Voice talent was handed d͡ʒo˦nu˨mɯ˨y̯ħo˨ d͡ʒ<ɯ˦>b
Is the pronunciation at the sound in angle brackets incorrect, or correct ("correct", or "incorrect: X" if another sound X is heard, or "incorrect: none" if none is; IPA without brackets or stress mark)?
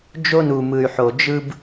correct